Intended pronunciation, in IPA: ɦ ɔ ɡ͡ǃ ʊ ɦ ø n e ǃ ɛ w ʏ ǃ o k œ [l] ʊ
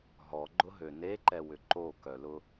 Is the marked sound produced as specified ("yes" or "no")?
yes